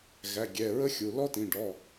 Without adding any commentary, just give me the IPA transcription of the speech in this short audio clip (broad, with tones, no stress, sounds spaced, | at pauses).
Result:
ɣ æ˩˧˩ ɡʲ ɛ˩˧˩ ɹ ə˦˥ xʲ u˩˧˩ l ɔ˦˥ t ĩ˩˧˩ ɖ ɔ˩˧˩